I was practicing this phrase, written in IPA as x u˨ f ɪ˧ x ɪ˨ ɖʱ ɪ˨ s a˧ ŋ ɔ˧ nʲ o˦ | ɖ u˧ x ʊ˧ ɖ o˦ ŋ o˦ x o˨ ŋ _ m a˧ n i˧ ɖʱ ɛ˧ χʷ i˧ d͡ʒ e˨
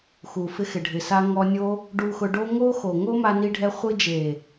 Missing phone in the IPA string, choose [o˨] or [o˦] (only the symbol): o˦